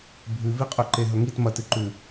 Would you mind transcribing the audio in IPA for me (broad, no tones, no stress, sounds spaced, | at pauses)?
bʱ ʉ v i qʼ ɵ ǃ e ɦ ɵ ŋ i t m ɐ t ɨ ǃ ʉ